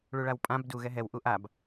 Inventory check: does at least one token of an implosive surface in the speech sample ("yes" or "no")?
no